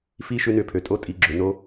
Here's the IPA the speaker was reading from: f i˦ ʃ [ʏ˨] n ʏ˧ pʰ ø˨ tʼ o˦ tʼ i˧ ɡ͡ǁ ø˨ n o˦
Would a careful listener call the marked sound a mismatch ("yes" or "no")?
yes